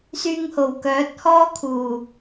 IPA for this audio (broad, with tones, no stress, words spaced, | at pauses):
syː˧ŋho˨˩wkœː˨˥t̚ hɔː˥kʰuː˨˩